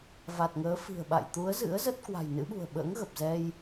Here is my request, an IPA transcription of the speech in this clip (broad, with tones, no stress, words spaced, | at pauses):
va˨˩t̚ŋəː˨˦fi̤˨˩ə̯ɓa̰˧˨j t̪u˨˦ə̯zɨ̰˧˥ə̯ zə˦˥t̚ kwa̤˨˩jnɨ̰˧˥ɓṳ˨˩ə̯ɓə̰ː˧˥ŋ ɣə˨˩p̚zɛ˧j